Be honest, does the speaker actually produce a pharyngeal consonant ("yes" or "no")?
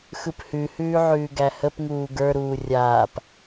yes